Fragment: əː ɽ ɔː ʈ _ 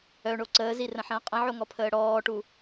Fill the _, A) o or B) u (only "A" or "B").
B